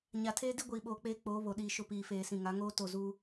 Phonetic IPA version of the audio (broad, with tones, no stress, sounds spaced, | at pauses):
ɲ a˨ tʰ eː˦ d i˦ ɡʷ iː˨ ɓ oː˨ k͡p eː˦ k͡p oː˨˦ β o˨ ɗ iː˨ ʃ ʊ˦˨ p iː˨ f eː˨ s ĩ˨ ŋ a˨˦ ŋ oː˦ t o˦˨ z uː˦